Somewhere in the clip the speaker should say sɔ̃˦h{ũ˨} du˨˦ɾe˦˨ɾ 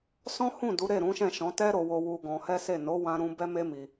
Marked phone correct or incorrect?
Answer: incorrect